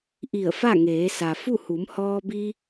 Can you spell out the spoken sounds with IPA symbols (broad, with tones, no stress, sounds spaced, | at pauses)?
ʔ i˧˩ ə̯ f a˥˨ ŋ eː˩˧ s a˩ f u˥˨ h u˩˧ m h ɔː˧ b i˧